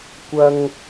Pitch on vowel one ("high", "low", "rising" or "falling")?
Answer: low